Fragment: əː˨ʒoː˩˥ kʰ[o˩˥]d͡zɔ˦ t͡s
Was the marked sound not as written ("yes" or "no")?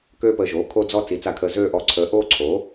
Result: yes